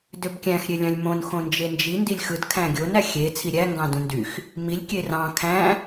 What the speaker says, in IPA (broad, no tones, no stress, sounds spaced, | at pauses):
d ø b kʲ æ̃ x ɾʲ e lʲ ɑ̃ lʲ m õ n x õ n d͡ʒ e n d͡ʒ i n d i lʲ x ɯ d kʰ æ̃ ɡʲ o n æ xʲ e t͡sʰ i ɾʲ æ ŋ ɡ ɑ̃ d ũ n d y x | m i lʲ kʲ e r ɑ̃ kʰ æ̃